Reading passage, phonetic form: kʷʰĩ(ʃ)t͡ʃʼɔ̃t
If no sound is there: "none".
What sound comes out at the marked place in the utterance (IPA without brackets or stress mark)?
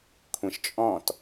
ʃ